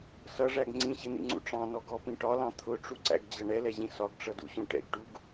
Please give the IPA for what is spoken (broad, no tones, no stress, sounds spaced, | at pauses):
s ʌ ʐ æ ɡ ŋ͡ǀ ĩ ɕ ɪ n̪ ḭ ŋ͡ǀ ṵ ʈ͡ʂ ɑ̃ n ɔ ɡ ɔ p ĩ ʈ ɒ l ɑ̃ t̪ʰ ʊ ʈ͡ʂ u ǀ æ̰ ɡ d͡ʑ ʌ ɳ ɛ l ɛ ʑ ĩ s ɒ ɡ ʈ͡ʂ ʌ d ṵ ɕ ũ ʈ ɛ̰ ɡ ʈ u ɡ